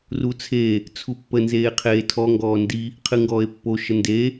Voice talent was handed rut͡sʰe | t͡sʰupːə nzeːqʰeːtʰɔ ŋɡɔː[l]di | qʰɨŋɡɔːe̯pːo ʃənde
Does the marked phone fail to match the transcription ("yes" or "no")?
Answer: yes